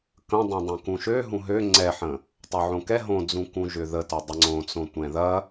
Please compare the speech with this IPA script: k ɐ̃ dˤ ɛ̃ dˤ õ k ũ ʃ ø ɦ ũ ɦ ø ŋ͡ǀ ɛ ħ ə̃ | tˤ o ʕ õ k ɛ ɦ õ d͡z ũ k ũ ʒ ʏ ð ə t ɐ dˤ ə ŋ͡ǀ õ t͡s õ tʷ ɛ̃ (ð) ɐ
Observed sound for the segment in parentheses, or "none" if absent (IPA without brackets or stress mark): ð